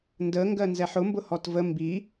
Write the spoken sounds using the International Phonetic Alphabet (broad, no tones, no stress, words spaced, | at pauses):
ndəŋɡɜnzɛħ ʊmbʊhɔt və mbi